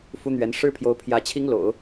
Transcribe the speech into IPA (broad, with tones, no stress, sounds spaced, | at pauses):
f u˥ n̪ ɥ ɛ˧˥ n ʂ ɻ̩˥ pʰ j o˧˥ ʊ̯ pʰ j ä˧˥ t͡ɕʰ i˥ ŋ l o̰˨˩˦ ʊ̯